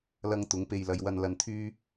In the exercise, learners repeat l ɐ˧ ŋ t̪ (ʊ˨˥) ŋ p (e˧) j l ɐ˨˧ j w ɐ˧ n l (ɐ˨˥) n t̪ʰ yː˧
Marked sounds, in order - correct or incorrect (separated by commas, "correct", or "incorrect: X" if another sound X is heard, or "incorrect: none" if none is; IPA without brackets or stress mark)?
correct, correct, incorrect: ɐ˨